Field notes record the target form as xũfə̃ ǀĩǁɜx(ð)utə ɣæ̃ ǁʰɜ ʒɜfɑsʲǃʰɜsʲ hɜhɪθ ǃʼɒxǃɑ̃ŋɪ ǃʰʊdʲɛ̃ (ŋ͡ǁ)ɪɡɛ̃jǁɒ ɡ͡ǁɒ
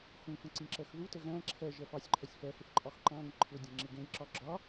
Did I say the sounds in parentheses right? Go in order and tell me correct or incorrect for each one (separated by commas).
correct, correct